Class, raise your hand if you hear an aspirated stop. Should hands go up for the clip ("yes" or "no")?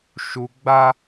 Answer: no